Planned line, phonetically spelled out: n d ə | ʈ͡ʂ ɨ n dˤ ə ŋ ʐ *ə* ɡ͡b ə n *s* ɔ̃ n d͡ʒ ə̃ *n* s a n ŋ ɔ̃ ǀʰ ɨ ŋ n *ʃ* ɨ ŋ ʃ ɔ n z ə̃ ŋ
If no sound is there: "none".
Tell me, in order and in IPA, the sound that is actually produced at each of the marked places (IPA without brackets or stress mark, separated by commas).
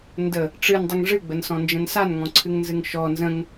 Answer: ɨ, s, n, z